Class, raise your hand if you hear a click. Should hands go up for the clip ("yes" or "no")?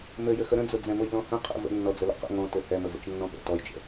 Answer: no